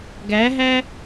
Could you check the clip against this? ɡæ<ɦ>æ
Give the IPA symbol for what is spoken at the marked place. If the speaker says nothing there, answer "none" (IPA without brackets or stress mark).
ɦ